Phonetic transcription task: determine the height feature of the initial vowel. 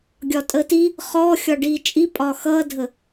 low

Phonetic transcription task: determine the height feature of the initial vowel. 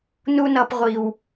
high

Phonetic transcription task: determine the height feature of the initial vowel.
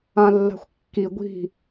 low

